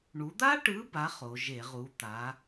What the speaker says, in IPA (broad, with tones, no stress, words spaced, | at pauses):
ɳu˩˧d̪a˦˥ʈɯ˨˥ba˩˧ χo˩˧ ʒe˧˩˧ʁu˨˥ t̪a˨˥